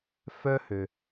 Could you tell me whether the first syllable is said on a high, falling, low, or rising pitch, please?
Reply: high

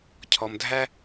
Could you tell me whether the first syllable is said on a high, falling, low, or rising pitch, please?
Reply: low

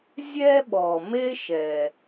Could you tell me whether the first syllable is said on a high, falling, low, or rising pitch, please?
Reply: high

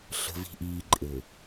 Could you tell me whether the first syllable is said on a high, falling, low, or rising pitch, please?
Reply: low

